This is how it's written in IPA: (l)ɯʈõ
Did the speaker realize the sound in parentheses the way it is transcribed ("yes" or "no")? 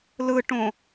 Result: yes